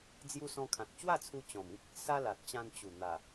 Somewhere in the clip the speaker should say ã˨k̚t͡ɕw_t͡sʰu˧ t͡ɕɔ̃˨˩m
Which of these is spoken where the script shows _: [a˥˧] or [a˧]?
a˥˧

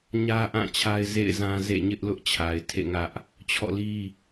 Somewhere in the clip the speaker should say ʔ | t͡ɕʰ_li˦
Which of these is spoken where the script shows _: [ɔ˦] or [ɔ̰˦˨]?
ɔ̰˦˨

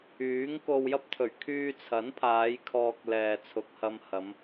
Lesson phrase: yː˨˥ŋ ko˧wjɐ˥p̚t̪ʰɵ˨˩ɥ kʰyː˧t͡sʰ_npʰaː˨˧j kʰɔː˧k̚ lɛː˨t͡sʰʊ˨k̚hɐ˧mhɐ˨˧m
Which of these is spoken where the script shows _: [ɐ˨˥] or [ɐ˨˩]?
ɐ˨˥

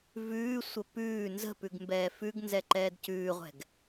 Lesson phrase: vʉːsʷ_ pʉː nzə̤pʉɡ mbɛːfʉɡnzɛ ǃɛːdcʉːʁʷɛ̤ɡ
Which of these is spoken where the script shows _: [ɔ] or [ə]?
ə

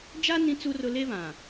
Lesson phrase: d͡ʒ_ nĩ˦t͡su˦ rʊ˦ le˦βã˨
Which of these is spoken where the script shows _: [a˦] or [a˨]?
a˦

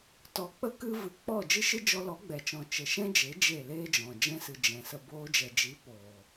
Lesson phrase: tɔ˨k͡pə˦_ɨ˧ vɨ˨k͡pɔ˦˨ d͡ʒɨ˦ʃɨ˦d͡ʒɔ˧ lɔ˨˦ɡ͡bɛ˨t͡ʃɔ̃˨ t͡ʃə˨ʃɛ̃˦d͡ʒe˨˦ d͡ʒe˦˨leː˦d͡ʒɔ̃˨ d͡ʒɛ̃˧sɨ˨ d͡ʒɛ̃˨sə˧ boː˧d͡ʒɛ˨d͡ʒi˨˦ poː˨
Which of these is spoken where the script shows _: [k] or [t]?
k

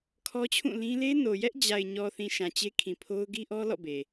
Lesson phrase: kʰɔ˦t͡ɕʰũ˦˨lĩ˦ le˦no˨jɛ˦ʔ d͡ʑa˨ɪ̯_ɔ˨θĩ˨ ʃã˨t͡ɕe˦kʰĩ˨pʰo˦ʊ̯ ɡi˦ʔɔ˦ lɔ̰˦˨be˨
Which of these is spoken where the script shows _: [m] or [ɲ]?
ɲ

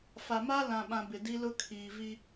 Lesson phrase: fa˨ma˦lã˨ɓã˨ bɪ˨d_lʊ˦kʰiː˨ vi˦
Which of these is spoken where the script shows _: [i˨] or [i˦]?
i˦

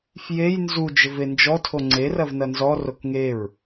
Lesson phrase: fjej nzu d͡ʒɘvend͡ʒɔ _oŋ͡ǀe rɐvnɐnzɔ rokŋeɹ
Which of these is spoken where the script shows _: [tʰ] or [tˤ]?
tʰ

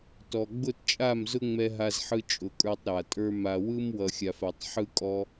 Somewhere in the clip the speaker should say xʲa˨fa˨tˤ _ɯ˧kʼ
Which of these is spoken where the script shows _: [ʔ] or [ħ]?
ħ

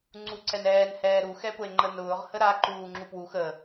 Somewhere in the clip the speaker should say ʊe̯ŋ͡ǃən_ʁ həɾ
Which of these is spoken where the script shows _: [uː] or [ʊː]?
ʊː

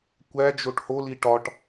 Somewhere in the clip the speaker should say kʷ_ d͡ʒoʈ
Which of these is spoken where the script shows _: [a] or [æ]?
æ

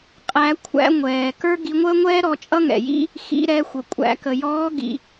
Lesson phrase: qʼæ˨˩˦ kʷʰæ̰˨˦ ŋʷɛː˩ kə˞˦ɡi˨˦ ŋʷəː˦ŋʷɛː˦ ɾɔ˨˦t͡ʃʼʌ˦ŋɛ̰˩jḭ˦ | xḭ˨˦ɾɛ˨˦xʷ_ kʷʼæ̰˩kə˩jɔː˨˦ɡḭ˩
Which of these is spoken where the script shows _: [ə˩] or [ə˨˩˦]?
ə˩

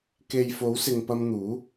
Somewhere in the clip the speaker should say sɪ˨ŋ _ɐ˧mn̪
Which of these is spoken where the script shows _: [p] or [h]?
p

